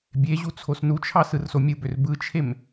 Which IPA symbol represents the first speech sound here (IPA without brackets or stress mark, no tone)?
bʲ